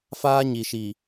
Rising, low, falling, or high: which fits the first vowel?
high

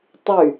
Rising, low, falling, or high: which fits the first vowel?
falling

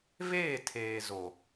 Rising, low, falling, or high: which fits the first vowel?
falling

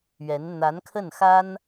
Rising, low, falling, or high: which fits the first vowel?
rising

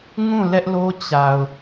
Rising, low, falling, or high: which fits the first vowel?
falling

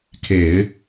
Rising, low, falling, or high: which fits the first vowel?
low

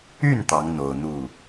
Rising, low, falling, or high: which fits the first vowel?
falling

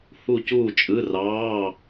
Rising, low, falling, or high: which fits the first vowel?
falling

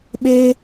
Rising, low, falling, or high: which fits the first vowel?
high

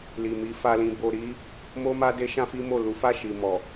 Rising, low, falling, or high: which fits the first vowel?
low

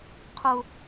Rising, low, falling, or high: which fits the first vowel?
high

